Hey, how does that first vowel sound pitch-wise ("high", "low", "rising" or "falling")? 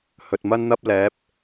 low